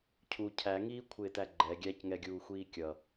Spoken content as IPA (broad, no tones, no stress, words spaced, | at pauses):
cʰu cʰæŋiːkʷʰɪːtæ ɡ͡ǃɛ ɡʲæcŋɛɡʲuːxʷiː kʲʌ